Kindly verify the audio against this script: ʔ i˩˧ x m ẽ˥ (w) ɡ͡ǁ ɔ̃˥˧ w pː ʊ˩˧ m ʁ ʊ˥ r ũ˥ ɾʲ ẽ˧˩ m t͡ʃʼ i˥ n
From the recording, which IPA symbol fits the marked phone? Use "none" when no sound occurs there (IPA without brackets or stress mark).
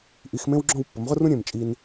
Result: w